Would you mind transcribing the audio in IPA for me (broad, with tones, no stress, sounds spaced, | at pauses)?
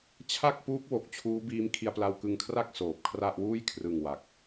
t͡ɕʰ a˥˩ k̚ p uː˦˥ k̚ w o˨˩ k̚ t͡ɕʰ uː˦˥ b iː˦˥ m kʰ i˧ a̯ p l a˧ w k ɯ˧ ŋ kʰ r a˥˩ k̚ s oː˨˩ p̚ kʰ r a˥˩ ʔ w uː˥˩ j kʰ r ɯ˨˩ ŋ w a˨˩ k̚